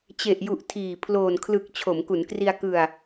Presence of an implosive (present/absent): absent